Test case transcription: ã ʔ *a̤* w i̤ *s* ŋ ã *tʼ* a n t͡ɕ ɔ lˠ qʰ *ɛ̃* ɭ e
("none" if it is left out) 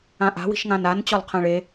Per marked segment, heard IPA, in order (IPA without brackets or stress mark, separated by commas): a̤, ʃ, n, ɛ̃